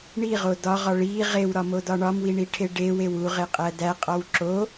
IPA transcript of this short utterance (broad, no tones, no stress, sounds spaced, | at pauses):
ɳ i ʁ o d ɒ ʁ ɒ ɭ i ʁ e w ɾ ɒ m o d ɒ ɳ ɒ m w i ɳ i ʈʰ e ɖ e w e w u ʁ e qʼ æ d æ qʼ ɒ w ǁ o